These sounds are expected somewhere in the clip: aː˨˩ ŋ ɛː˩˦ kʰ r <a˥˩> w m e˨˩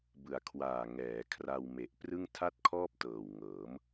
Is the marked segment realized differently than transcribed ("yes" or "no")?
yes